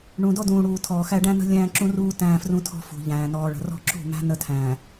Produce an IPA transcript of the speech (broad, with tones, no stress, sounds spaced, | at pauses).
ɳ ũ˨ d ɔ˦ d ũː˨ ɽ uː˨ tʰ ɔː˨ x æ˦ ɖ æ̃˦ n ə̤˦ lʲ æ̃ː˦ ǁ ũ˦ r uː˦ t æ̃ː˦ f r ũ˦ tʰ ɔ̤˦ f ṳ˨ ʎ æ̃ː˨ n ɔː˨ ɭ ə̤˨ r ɔ̤˦ ǁ ṳ˦˨ m æ̤˦ n ə˦ tʰ æ̃ː˨